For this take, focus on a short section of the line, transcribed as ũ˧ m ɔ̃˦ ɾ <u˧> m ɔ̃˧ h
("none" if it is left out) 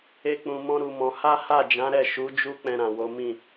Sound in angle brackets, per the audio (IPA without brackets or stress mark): u˧